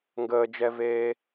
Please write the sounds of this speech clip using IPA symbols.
ŋ ɡ əː d͡ʒ ɛ v eː

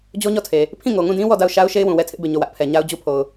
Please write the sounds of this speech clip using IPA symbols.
d͡ʑ o˦ ɲ ɔ˦˨ tʰ e˨ | pʰ ĩ˦˨ ŋ o˨ ŋ ũ˦˨ d ĩ˦ w ɔ˦˨ d a˦˨ ʊ̯ ʃ a˦ ʊ̯ ʃ e˦ ɪ̯ w ũ˨ w ɛ˦ tʰ ɪ˦ ʔ b e˨ ɲ o˦˨ w ä˦ ʔ pʰ ɛ˨ ɲ a˦ ʊ̯ d͡ʑ u˦ pʰ o˨ ʊ̯

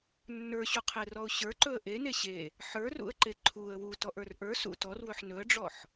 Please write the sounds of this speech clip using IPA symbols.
nː ə˞ ɕ u qʰ e r ɔ ʊ̯ ɕ ə˞ ǃ ɵ ə̯ ʔ e n e ɕ e | ħ ə˞ r ṵ ə̯ ǃ e ǃʰ u ə̯ w u t ɔ ʔ ə˞ r ʔ ə˞ s ṵ t ɔ r w ɵ ħ n ɵ ə̯ ɖ͡ʐ ɔ ħ

